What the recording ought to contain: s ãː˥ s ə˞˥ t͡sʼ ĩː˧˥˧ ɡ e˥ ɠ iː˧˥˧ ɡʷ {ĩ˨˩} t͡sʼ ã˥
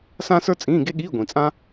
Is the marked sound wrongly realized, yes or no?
no